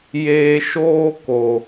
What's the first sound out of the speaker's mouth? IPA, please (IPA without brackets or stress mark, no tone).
j